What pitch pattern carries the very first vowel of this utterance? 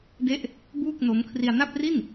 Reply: falling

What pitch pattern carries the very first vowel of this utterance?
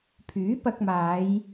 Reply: rising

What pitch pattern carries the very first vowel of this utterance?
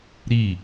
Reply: falling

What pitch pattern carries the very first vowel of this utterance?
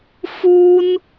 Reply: high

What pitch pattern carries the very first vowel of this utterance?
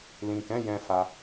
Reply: low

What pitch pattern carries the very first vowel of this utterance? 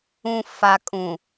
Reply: low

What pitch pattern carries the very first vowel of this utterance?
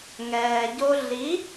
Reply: low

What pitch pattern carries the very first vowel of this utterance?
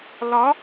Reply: rising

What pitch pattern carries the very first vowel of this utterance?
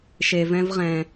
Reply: low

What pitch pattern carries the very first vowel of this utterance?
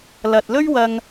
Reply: low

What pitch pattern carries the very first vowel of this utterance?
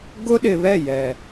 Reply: high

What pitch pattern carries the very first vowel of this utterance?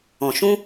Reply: low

